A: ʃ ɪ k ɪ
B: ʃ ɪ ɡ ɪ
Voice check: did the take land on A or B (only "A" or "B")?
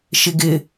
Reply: B